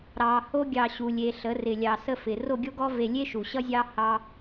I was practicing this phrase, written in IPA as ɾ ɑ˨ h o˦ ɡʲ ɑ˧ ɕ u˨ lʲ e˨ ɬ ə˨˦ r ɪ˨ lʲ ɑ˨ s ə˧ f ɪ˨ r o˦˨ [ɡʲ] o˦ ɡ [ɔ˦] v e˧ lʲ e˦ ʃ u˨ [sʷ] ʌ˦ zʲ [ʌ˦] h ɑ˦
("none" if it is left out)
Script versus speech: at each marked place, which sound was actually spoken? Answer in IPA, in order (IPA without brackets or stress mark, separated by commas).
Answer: ɡʲ, ɔ˦, ɕ, ɑ˦